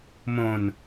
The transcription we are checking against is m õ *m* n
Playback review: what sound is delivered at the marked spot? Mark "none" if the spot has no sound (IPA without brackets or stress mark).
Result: none